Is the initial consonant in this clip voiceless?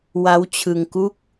no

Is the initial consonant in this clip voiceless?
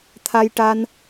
yes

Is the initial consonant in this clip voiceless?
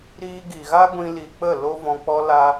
no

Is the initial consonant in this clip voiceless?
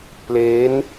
yes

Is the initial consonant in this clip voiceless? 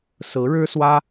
yes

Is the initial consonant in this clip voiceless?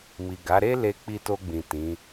no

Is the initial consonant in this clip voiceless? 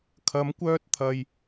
yes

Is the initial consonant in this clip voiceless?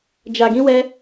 no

